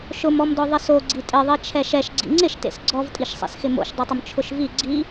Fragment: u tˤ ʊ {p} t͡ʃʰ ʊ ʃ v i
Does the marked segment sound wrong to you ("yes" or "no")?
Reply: yes